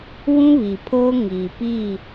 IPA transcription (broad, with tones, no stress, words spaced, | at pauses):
wũ˦βi˨pʰoː˦ ŋiː˨pi˦˨